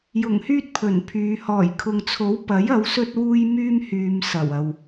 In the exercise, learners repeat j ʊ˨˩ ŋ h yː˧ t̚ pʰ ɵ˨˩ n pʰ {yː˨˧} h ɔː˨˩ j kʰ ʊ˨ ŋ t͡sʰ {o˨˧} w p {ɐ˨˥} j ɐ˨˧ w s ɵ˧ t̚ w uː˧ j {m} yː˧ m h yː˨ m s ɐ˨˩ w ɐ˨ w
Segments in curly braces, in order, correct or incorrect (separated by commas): correct, incorrect, correct, correct